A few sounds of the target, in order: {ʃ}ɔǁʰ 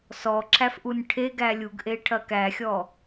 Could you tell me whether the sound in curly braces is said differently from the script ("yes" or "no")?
yes